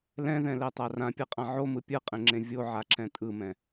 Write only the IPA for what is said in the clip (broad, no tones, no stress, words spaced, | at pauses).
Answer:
lɛ̃ðɛ̃lɛtˤa rãpʲɯqʼã ʕomɯ pʲɯqʼẽŋ͡ǁẽ vʲoʕaǁɛ̃ tʼɯmɛ̃